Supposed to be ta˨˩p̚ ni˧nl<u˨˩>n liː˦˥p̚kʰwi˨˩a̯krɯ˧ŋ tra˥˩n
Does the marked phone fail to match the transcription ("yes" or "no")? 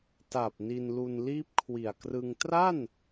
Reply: yes